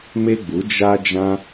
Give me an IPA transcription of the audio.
m e˦ ɡ͡b u˨˦ d͡ʒ a˦ d͡ʒ ã˦

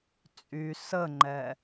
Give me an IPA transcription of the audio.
t͡sʼ y s ə ŋ͡ǃ ɛ

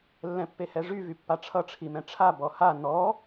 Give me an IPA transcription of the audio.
lː ɛ̃ pː e h ɛ ʐ y v y pː a ʈ͡ʂʰ ʌ ʈ͡ʂʰ i m ɛ̃ ʈ͡ʂʰ a b ɔ h a n ɔ

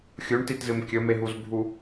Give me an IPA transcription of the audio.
xʲ u ɳ t i t z ɨ m kʲ ɵ m e ɦ u z bʱ u

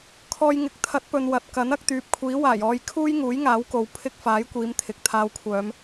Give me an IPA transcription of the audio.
kʰ ɔː˧ j ŋ ɪ˨˥ k̚ t̪ʰ ɐ˨˥ t̚ p ɵ˨ n w ɐ˨ t̚ k ɐ˨˥ n ɐ˧ k̚ t̪ yː˨˥ p̚ kʷʰ iː˨˥ w aː˨˩ j ɔː˧ j kʰ uː˥ j ŋ uː˨˥ j ŋ aː˨˥ w k o˨ w pʰ ɪ˥ k̚ f aː˨˥ j kʷ iː˨˧ m t̪ʰ ɪ˨ k̚ t̪ʰ aː˧ w kʷʰ œː˨˧ m

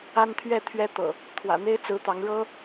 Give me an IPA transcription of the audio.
a˦ n t̪ʰ ɥ ɛ˥˨ t̪ʰ ɥ ɛ˦ t̪ ɤ̰˨˩ | t̪ʰ w ä̰˨˩ n̪ e˦ ɪ̯ t͡s ɹ̩˨˦ t̪ ɑ˨˦ ŋ ɻ ɤ˦

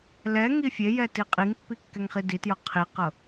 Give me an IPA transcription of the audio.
l ɛ ŋ i fʲ e j ɛ t i qʼ i ŋ pː i kː ɛ ŋ χ i d i t j ɤ qʰ i q ɤ

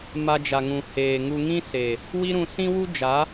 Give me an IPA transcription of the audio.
m a˧ d͡ʒ a˨ ŋ ũ˨ h eː˨ ŋ u˧ ŋ ĩ˦ s e˨ | w i˦ ɾ ũ˧ s ĩ˦ w u˦ d͡ʒ a˨˦

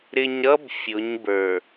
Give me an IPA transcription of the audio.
ɾ ɪ˨ ɲ ɾ ʌ˦ b fʲ ʊ˨˦ ɲ b ə˞˨

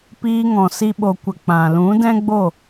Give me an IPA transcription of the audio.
p iː˧ ŋ ɔ̃˨ s i˧ ɓ o˨ kʷ ə˨ k͡p ã˨ l ũ˨˦ d ɛ̃˦ ɡ͡b o˦˨

